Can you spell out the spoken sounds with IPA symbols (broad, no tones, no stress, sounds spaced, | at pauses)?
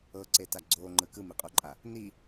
ɤ ǀ e t a ɡ͡ǀ o ŋ͡ǃ ɯ k ɯ m i qʼ o ǃʼ a | n i